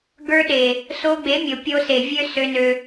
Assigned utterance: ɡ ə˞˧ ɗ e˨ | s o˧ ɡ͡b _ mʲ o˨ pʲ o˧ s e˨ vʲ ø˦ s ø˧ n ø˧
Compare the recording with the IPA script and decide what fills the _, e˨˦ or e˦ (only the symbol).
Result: e˨˦